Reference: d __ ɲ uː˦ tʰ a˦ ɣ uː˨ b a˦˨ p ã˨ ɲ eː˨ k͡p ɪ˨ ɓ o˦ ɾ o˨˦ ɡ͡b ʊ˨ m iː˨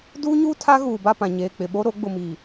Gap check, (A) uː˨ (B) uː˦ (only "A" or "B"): B